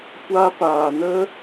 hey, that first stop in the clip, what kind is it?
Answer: plain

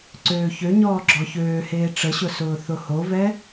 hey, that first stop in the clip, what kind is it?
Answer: click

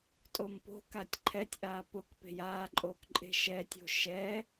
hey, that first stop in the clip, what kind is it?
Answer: ejective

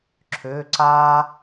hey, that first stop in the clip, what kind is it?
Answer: click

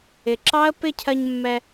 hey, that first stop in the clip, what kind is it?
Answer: click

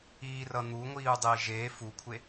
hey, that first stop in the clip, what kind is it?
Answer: plain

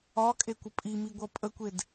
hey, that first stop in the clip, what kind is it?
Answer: ejective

